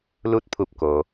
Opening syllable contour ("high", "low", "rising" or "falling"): rising